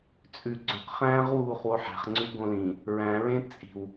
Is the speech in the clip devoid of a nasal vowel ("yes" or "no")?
no